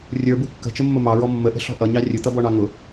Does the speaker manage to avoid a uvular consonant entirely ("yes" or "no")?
yes